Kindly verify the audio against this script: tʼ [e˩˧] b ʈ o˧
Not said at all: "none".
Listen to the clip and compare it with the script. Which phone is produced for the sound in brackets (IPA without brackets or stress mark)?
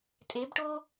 e˩˧